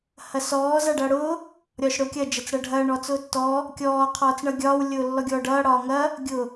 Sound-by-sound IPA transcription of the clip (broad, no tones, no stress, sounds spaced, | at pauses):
h ɐ s ɔː z a ɖ ʌː ɽ ʊː | ɾʲ ɒː ʃ ɽ ʊː kʲ ɐ d͡ʒ ɐ t͡s ɽ ʌ ɖʱ ɐː ɳ ɔ t͡s ʊː tː ɔ | kʲ ɔː qʰ ɔː t͡s ɳ ʌ ɡʲ ɒː w lʲ ʊː lː ɔ ɡʲ ɔː ɖ ʌː ɽ ɒː ŋ ɐ | ɡʲ ʊ